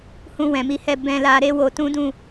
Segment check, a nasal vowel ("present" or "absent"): present